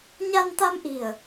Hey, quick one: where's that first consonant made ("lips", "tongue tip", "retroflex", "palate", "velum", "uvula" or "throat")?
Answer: palate